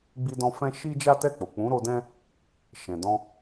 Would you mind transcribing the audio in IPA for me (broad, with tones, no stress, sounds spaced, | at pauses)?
ɡ͡b i˧ d ɔ̃˧ f ɛ̃˦ ʃ i˦ d͡ʒ a˦ t ɛ˦˨ k͡p o˨ k͡p ũ˨˦ ɾ o˧ d ɛ̃˦ | ʃ ɛ̃˨ d ɔ̃˧